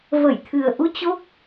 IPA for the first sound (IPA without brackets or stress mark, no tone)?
v